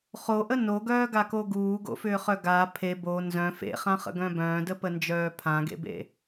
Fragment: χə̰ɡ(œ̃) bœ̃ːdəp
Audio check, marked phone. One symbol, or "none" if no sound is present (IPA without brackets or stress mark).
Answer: œ̃